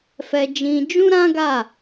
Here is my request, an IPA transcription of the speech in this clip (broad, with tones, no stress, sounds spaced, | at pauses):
f ɛ˧ d͡ʒ ĩ˧ d͡ʒ ũ˦ ɾ ã˦ ɡ a˦˨